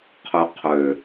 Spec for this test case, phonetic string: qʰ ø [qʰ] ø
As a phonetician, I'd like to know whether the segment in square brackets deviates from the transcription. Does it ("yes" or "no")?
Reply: no